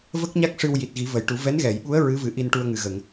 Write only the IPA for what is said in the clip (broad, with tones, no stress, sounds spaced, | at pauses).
v ə˦˥ k̚ ɲ a˦˥ k̚ ʂ ɨ˧ w j i˨˩ t̚ ɣ i˨˩˦ v ə˨˩˨ j ʈ u˨˩˦ v ɛ˧˥ n ɣ ɛ˨˩˨ j ɓ u˧˥ ə̯ ɹ ɨ˧˥ v ɨ˨˩˦ ʔ i˧ n ʈ u˧ ə̯ ŋ ɨ˨˩ ɣ ə˨˩˨ ŋ